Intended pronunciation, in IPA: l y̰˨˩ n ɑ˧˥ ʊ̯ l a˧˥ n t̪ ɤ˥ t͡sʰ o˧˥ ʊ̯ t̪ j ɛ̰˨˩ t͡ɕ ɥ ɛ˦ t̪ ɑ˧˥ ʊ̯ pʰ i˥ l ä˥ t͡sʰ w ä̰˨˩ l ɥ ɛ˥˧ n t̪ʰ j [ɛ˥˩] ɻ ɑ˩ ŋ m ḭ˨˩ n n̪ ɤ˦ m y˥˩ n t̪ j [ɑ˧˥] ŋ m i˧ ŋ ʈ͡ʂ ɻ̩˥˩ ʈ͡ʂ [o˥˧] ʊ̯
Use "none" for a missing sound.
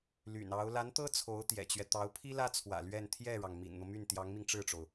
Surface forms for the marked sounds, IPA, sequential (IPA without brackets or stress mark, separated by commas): ɛ˥˩, ɑ˧˥, o˩